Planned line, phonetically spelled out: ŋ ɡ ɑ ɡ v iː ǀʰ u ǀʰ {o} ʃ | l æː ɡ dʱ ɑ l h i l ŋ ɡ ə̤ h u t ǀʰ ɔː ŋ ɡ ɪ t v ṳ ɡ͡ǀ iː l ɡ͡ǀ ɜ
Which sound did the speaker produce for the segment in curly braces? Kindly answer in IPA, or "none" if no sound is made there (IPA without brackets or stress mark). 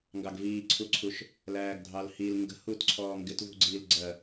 u